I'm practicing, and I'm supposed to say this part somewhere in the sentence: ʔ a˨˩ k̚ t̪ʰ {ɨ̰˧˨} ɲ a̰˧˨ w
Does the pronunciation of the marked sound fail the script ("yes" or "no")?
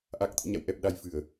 no